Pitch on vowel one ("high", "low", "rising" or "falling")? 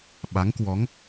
rising